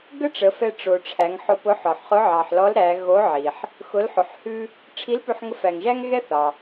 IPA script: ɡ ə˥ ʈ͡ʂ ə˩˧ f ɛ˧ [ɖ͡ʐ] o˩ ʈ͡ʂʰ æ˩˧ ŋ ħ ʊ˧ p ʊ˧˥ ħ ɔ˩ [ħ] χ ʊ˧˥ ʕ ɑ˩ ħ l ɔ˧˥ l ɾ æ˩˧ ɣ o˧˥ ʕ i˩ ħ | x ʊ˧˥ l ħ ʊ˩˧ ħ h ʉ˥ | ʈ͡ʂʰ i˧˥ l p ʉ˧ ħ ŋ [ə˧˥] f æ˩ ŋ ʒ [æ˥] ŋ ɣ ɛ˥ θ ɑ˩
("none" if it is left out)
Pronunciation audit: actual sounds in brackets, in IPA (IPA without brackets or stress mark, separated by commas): ʈ͡ʂ, ħ, ə˧˥, æ˥